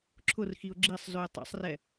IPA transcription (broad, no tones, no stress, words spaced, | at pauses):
ǁʰʊrxiʊ̯ ɡ͡ǁisˤzʉɪ̯ tˤḛsˤrɛ